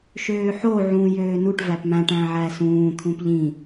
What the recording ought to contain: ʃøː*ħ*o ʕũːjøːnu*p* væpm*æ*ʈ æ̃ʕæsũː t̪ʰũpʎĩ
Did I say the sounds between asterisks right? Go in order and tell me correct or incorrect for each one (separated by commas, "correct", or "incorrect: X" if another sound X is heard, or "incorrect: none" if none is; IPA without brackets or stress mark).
correct, incorrect: ʈ, incorrect: æ̃